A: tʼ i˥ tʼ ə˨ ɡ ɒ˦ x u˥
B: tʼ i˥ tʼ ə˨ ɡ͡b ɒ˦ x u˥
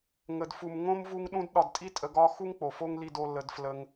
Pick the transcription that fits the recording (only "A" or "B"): A